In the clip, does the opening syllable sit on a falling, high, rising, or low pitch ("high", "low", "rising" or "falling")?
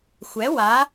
rising